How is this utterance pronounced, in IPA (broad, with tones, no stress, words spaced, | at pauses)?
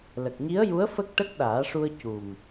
lə˨˩k̚ɲi˧˥ə̯ju˧˥ə̯ fə˦˥k̚ʈə˦˥k̚ɗaː˨˩˦ʂu˧ə̯ cu˨˩m